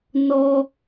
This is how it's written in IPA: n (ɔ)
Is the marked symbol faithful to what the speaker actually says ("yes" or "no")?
yes